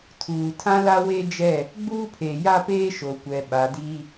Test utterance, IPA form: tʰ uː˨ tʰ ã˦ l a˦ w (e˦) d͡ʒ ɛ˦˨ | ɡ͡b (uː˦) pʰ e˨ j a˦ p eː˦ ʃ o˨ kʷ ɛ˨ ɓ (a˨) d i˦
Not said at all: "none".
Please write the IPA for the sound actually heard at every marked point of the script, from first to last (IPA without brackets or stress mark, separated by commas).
e˦, uː˦, a˨